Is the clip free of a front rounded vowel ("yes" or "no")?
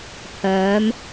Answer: no